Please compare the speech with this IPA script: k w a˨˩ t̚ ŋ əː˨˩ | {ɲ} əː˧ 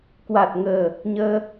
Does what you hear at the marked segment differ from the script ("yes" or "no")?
no